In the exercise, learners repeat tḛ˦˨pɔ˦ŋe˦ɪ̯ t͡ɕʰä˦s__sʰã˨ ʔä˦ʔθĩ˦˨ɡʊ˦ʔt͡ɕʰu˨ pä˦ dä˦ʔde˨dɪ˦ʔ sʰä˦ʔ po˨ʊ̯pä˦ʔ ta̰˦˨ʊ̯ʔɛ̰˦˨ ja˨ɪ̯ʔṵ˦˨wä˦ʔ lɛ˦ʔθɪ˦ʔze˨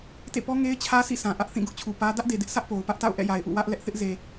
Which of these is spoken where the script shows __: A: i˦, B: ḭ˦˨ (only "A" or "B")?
B